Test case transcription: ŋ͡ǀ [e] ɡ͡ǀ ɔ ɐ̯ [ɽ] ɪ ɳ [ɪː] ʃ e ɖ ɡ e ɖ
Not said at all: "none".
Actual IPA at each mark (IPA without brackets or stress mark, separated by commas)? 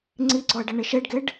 i, ɖ, ɪ